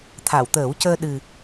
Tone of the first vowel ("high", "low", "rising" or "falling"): low